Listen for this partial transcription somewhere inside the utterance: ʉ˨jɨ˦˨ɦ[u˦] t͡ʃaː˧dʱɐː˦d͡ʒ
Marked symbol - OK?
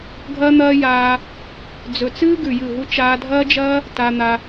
yes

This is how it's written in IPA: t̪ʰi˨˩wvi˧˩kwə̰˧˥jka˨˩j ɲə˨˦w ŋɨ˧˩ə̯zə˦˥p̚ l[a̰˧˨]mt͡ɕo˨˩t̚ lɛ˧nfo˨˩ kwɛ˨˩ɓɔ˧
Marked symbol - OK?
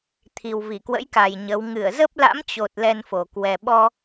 no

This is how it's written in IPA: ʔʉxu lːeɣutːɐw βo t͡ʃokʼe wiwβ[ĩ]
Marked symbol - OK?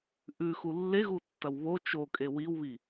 no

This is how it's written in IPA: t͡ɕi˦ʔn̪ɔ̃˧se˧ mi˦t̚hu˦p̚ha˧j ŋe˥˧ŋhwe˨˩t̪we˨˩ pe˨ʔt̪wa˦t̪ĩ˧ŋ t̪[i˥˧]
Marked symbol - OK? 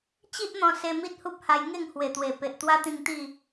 yes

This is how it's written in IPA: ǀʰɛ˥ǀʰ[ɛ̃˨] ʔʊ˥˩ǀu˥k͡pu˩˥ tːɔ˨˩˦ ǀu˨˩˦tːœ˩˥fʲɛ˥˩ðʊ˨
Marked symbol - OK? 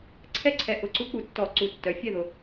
no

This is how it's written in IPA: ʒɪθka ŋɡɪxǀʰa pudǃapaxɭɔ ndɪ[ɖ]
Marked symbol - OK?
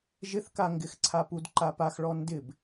no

